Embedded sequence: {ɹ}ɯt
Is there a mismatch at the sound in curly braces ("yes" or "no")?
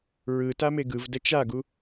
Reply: no